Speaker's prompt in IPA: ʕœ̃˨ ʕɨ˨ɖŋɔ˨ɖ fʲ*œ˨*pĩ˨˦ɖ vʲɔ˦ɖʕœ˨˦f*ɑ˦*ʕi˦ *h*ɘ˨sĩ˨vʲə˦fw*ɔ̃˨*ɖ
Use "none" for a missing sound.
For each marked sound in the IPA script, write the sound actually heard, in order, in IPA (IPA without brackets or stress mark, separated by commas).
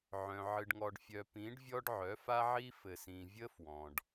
œ˨, a˦, f, ɔ̃˨